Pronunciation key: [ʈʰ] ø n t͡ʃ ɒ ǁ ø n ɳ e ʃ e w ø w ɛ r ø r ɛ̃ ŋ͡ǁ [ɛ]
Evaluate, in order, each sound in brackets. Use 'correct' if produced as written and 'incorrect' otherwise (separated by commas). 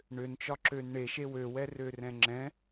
incorrect, incorrect